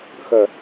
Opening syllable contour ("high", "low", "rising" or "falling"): low